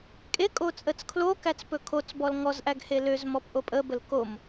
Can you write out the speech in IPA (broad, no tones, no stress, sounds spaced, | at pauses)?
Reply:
kʼ e kʼ o t͡sʼ ə t͡s kʰ l o k æ t͡s p ɵ kʰ o t͡s b ɔ l ŋ ɔ z ʔ æ ɡ h e l ø z m ɔ p ʔ o pʼ ə b ə l k o m